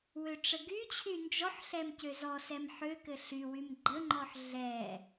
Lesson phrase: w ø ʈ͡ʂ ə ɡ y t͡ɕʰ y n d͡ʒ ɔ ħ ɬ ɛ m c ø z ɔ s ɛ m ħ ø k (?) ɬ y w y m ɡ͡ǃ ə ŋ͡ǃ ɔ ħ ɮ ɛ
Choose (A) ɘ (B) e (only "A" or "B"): A